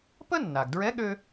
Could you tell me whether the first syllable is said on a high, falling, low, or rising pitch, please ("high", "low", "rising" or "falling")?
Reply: high